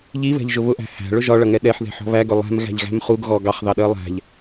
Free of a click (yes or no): yes